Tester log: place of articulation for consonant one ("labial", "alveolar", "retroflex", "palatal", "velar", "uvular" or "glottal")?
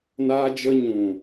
alveolar